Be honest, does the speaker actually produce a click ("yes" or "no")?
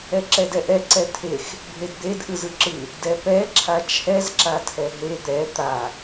yes